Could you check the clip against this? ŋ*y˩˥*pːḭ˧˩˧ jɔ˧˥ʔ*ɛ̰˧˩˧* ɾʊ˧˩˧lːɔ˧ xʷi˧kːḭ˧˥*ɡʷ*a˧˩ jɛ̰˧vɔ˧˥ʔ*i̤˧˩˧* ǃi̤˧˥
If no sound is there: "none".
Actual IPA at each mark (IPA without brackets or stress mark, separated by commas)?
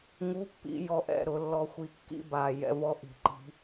u˩˥, ɛ̰˧˩˧, b, i̤˧˩˧